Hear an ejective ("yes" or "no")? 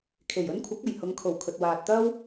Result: no